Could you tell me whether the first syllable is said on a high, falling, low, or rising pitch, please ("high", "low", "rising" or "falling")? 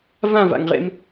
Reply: falling